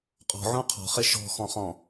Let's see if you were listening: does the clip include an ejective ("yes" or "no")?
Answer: yes